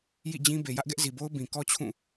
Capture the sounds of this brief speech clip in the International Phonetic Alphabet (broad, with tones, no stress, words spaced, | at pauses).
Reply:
jḭ˦˨d͡ʑĩ˦ be˨jä˦ʔɡɛ˦ʔ zi˨bo˦ʊ̯ bĩ˨kɔ˦t͡ɕʰũ˦˨